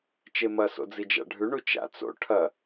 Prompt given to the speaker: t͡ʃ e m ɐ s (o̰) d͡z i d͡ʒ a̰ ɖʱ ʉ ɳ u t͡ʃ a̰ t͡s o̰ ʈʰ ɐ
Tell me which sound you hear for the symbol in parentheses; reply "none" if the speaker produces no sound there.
o̰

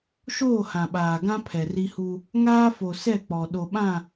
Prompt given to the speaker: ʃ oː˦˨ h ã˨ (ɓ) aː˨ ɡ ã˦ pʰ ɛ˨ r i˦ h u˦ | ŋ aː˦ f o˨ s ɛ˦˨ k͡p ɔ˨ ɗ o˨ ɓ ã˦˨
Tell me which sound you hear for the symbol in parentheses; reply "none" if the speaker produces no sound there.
ɓ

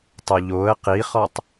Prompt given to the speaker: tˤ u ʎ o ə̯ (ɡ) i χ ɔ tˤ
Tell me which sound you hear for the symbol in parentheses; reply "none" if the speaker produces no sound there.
q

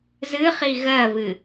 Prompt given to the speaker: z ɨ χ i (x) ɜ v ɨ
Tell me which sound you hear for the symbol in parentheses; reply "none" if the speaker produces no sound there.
ɣ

